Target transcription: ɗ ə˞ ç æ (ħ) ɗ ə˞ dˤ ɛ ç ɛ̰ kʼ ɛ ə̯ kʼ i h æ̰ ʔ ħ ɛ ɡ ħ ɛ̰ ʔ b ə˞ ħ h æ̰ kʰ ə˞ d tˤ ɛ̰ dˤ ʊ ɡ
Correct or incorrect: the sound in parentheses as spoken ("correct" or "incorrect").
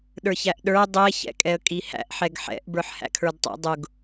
incorrect